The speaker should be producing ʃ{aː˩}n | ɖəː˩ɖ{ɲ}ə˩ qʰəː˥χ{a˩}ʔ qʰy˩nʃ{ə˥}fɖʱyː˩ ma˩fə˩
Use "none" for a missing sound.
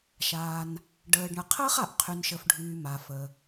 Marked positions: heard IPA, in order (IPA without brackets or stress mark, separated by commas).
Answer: aː˩, ɳ, a˩, ə˩